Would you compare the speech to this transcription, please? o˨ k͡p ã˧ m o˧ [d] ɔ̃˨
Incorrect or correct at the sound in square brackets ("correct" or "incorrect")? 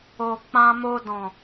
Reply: correct